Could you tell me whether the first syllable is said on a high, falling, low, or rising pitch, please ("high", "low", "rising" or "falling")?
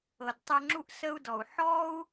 low